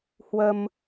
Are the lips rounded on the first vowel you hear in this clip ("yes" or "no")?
no